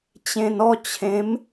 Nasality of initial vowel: nasal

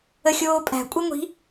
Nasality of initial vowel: oral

